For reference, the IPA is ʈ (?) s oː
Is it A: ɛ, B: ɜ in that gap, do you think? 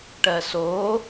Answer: B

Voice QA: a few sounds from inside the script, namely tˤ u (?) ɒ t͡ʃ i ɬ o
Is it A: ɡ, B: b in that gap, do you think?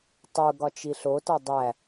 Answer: A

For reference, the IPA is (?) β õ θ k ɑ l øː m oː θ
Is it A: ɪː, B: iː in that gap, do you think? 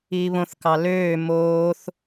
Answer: B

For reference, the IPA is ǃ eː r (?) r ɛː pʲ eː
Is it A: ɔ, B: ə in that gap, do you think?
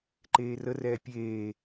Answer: B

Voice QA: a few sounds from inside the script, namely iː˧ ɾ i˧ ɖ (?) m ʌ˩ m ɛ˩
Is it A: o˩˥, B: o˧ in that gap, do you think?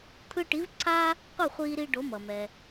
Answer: A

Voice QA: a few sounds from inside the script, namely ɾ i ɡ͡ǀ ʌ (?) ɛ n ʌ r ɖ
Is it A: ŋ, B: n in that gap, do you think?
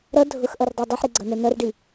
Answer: B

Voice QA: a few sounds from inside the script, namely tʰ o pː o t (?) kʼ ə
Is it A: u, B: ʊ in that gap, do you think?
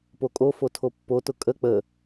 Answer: B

